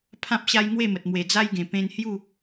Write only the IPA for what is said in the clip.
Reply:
pʰ ã˦ p̚ ɕ a˦ j ŋ w e˥˧ m ə˨ t̚ m w e˨˩ d͡z a˦ j ɡ ẽ˨˩ p ẽ˧ n h j u˥˧

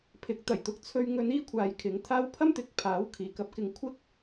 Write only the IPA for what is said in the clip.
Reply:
pʰ ɪ˨˥ k̚ t̪ ɐ˨˩ j t̪ ʊ˧ k̚ t͡sʰ ɵ˧ ɥ ŋ ɵ˨˧ n iː˧ kʷʰ aː˨ j kʰ ɪ˨˧ ŋ t̪ʰ aː˥ w pʰ ɐ˥ m t̪ ɪ˨˥ k̚ pʰ aː˨˥ w kʰ iː˨ k ɐ˧ p̚ k ɪ˧ ŋ kʷʰ ɪ˥ k̚

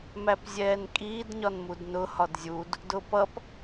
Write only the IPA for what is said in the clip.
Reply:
m æ p zʲ ɛː n kʼ iː d ɲ ɒ n m u d n ʊ h ɒ d zʲ u d | d ʊ p ʌ p

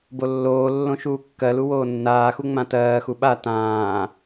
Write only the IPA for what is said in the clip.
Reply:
b o lː oː lː õ ʃ uː kː ɜ l u w oː nː aː x u ŋ͡m ã t ɜː x u ɓ a t ãː

